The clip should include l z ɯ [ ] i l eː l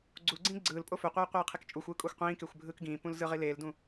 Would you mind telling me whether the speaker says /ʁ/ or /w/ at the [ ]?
ʁ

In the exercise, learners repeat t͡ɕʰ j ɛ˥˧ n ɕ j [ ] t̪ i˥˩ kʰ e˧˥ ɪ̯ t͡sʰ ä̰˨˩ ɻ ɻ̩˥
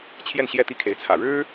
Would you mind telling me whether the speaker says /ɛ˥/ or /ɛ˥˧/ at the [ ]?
ɛ˥˧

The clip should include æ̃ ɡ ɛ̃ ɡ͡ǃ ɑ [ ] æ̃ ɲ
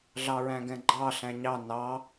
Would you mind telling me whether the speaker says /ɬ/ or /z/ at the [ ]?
ɬ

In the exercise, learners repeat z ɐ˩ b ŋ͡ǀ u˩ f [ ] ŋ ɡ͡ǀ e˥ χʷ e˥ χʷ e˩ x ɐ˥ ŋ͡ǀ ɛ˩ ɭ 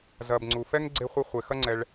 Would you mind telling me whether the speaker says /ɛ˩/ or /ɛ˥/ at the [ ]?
ɛ˥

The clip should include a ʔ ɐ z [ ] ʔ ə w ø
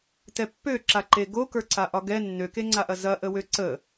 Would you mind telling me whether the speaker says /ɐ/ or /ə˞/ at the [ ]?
ɐ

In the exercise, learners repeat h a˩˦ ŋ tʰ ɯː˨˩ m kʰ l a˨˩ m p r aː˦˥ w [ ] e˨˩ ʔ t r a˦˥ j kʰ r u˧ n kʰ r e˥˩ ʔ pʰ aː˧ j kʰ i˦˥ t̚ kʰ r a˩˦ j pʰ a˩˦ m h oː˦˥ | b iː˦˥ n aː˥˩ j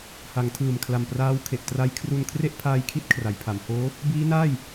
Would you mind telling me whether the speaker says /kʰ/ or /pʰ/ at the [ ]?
kʰ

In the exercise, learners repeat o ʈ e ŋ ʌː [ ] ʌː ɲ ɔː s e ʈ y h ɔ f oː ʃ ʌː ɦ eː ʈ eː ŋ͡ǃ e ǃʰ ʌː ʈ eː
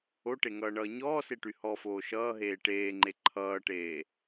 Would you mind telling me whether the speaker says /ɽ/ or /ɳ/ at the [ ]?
ɳ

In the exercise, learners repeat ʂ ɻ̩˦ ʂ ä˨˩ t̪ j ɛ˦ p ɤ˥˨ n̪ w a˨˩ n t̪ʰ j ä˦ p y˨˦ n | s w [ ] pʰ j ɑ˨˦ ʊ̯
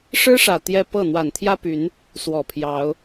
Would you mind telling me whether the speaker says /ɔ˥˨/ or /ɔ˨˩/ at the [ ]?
ɔ˨˩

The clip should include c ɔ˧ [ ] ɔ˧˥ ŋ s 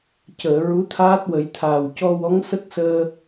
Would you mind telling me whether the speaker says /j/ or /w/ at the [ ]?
w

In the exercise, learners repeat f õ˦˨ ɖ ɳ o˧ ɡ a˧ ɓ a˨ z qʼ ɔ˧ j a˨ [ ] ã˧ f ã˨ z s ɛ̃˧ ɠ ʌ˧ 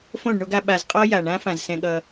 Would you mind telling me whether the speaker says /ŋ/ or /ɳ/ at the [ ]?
ɳ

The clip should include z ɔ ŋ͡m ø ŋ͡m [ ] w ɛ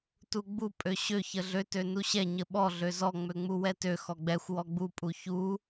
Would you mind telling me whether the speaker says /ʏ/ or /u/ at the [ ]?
u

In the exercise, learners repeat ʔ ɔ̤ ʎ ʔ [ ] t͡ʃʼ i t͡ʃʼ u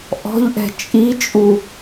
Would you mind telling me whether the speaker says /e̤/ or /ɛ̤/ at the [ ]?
ɛ̤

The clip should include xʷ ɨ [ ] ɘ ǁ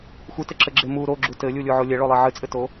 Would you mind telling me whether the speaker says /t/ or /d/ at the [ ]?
t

